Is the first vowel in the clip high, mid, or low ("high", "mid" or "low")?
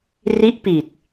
high